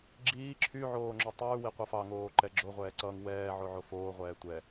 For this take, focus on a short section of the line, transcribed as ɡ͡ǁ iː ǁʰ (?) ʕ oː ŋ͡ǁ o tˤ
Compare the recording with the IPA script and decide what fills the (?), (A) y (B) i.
A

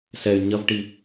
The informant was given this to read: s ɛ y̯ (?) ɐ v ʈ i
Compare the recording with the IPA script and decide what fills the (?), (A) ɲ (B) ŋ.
A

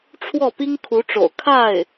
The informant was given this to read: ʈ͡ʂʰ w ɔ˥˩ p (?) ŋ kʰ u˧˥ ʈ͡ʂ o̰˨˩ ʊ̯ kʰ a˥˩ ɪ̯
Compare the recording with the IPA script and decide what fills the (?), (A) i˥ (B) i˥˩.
A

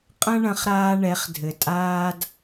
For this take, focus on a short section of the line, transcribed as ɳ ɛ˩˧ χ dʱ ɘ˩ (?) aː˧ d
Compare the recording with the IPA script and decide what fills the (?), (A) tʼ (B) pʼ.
A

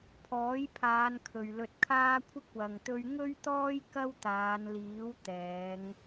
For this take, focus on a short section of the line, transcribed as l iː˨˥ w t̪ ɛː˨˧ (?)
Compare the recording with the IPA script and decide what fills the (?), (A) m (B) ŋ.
B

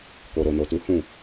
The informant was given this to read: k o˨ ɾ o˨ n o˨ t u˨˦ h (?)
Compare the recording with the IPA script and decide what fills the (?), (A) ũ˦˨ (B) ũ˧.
A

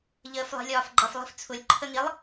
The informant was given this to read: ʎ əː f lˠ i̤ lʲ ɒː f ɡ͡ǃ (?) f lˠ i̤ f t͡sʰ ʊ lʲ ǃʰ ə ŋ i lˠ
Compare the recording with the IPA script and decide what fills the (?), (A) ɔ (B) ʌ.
B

